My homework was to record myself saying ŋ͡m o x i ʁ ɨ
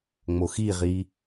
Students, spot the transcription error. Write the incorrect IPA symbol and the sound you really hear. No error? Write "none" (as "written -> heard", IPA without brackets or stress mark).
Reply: ɨ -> i